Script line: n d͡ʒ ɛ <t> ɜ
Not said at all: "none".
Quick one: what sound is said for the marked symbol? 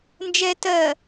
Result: t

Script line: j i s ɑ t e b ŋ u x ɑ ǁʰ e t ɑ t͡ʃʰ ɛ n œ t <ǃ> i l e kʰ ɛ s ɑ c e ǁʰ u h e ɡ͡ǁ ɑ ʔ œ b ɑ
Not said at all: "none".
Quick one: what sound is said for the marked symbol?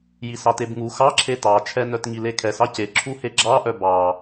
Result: ŋ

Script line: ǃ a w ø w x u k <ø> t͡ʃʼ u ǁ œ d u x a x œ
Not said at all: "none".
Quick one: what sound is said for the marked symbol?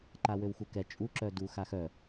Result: ɛ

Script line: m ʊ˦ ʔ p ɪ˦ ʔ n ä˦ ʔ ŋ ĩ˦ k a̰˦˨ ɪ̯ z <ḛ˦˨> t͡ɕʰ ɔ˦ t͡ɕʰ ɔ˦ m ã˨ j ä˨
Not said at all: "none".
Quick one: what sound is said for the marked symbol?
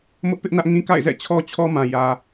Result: ɛ̰˦˨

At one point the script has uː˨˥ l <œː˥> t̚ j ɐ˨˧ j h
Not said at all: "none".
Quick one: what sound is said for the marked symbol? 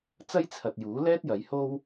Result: ɛː˥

